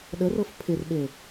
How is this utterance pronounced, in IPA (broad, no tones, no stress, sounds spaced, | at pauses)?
ɗ ə r ɤ f pʰ ɪ r ɓ e